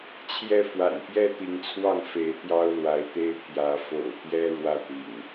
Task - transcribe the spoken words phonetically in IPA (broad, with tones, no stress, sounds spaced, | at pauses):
t͡ɕʰ j ɛ˥˨ f w a̰˨˩ n p j ɛ˦ t̪ i˨˦ ŋ t͡sʰ w ɑ˥˨ ŋ f e˨˦ ɪ̯ t̪ j ɑ˦ ʊ̯ l w a˨˦ ɪ̯ t̪ e˦ ɪ̯ pʰ j ä˨˦ f o̰˨˩ ʊ̯ t̪ j ɛ˦ ɻ w ä˥˨ t̪ ḭ˨˩ ŋ